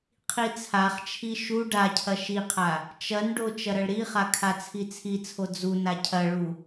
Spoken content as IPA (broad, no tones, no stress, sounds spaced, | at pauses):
qʰ i t͡sʰ a χ t͡ʃʰ i ʃ u ɖ a cʰ ɐ ʃ i qʰ a | t͡ʃ ɐ n ɖ o t͡ʃ ɐ ɾ ɐ ɭ ɾ i χ a kʰ a t͡sʰ i t͡sʰ i t͡sʰ o d͡z u n a cʰ ɐ ɭ u